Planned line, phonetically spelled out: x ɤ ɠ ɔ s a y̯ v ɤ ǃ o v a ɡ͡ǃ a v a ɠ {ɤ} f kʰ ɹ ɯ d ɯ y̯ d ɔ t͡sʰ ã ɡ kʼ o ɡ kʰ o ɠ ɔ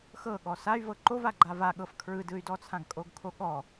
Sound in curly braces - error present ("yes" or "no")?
no